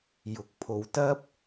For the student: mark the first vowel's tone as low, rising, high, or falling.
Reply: rising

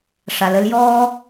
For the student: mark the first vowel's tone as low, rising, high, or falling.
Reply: low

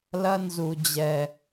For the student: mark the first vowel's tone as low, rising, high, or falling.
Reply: high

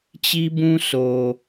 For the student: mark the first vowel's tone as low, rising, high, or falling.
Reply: high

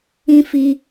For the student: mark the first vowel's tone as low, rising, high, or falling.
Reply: high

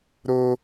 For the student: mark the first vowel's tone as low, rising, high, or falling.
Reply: high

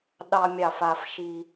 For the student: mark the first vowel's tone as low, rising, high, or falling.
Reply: high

